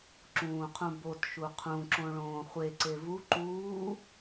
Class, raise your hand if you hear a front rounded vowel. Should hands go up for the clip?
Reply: no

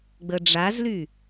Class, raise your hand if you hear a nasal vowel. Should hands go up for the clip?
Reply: no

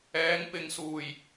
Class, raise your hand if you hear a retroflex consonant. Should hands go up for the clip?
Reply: no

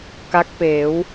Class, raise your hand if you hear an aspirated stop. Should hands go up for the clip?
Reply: no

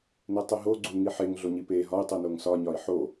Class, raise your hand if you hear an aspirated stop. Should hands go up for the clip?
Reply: no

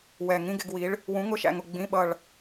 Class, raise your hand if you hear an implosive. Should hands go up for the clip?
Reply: yes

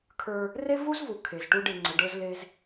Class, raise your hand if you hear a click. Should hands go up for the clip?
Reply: yes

